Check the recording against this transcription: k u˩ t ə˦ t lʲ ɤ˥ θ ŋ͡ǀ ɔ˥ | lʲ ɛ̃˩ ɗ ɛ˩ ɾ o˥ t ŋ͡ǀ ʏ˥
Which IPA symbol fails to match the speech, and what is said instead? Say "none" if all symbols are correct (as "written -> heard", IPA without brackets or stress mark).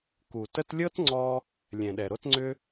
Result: θ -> t